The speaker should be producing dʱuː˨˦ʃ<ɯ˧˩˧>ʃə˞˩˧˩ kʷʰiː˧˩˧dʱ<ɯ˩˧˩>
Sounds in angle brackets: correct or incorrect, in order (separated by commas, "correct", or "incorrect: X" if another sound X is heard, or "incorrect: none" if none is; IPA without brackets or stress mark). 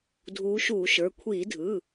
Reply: incorrect: u˧˩˧, correct